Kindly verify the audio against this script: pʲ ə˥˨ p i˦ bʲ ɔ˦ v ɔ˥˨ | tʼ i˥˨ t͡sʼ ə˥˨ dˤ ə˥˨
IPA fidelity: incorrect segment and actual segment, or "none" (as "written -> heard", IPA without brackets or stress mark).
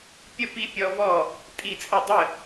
bʲ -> pʲ